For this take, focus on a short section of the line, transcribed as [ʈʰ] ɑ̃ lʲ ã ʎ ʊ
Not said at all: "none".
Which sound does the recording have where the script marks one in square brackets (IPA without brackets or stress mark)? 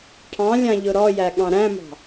ʈʰ